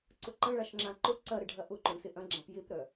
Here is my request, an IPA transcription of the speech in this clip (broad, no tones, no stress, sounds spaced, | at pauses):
ǀ ʊ ǃ ɐ̃ ɭ a ʃ ŋ͡ǁ ã ǃ ʊ ǀ ɐ ɾ ɪ ɖʱ ɐ ʔ ʊ ǃ ʊ ɳ s ɪ ʔ ɐ̃ ɡ͡ǁ ã p j ɪ p ɾ œ